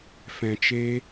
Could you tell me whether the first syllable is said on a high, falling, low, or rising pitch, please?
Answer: low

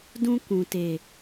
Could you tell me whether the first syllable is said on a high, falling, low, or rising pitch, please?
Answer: high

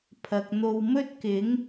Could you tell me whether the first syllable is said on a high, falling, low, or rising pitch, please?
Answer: low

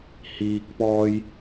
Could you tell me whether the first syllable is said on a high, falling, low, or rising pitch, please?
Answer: low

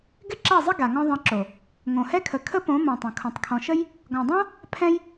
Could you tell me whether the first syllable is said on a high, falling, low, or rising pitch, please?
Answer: high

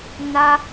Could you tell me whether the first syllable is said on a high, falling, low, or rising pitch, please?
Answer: high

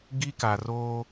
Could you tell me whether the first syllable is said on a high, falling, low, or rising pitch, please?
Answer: high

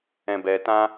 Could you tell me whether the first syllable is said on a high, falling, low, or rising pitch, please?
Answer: low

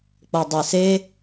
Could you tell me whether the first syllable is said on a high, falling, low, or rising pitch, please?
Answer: low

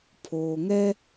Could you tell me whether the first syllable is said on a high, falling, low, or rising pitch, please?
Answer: low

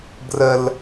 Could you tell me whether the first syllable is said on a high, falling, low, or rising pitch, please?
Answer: low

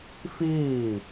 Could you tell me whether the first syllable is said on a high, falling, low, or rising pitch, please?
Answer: falling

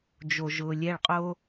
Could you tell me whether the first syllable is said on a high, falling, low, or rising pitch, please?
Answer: low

